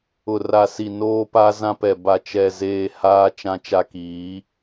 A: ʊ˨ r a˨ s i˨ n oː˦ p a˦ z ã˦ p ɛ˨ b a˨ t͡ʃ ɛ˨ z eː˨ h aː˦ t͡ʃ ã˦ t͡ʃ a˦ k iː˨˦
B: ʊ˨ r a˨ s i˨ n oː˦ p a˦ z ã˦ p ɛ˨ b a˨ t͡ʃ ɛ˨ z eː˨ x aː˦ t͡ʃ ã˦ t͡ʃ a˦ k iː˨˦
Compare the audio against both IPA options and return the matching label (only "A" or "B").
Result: A